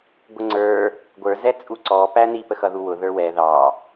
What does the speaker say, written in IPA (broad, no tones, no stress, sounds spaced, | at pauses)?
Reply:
ɡʷ ə ŋ͡ǀ ə˞ | ɡʷ ə˞ z ɛ t͡sʼ u ǀ ɔ p æ n i p ə x ʌ ð u w ʊ ð ə˞ w ɛ ð ɑ